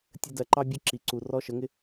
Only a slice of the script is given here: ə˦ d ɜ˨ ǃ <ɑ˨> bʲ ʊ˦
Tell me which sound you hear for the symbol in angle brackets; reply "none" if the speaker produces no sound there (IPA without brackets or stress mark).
ɑ˦